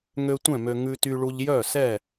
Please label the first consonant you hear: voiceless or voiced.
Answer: voiced